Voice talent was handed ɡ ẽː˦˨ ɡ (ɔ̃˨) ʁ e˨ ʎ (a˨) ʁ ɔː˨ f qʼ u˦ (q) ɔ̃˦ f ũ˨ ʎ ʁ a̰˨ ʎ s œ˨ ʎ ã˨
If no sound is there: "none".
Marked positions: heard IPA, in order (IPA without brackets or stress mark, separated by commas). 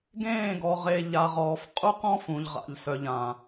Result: ɔ˨, a˨, q